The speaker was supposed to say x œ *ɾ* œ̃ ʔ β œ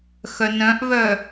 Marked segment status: incorrect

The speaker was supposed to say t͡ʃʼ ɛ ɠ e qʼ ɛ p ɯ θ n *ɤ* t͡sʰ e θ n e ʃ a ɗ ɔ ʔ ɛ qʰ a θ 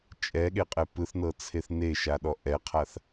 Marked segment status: correct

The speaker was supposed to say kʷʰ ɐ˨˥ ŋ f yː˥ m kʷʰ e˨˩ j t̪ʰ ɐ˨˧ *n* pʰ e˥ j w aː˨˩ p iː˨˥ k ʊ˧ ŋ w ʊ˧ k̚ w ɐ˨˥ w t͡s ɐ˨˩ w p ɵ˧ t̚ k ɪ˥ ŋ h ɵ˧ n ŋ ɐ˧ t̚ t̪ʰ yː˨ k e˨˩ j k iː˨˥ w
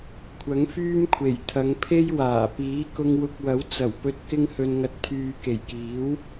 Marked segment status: incorrect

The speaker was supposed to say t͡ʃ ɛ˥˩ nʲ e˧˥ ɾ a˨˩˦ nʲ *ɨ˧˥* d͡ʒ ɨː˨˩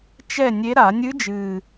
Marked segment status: correct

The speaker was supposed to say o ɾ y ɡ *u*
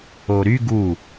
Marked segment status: correct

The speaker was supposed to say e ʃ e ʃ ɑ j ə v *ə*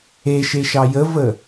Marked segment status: correct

